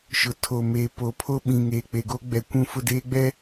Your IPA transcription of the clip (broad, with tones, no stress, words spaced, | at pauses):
ʃʊ˨ tʰo˨meː˨ po˨pʰo˦ɓĩ˨ŋeː˨ k͡pe˨ɡo˦ɡ͡bɛ˨ kʷũ˦˨ fʊ˦˨deː˦ɡ͡bɛ˦